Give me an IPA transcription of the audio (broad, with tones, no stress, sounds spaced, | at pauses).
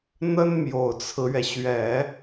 n̪ ə˥ n m j o˨˩ ʊ̯ t͡sʰ ɹ̩˦ ɥ ɛ˩ ɕ ɥ ɛ˨˩˦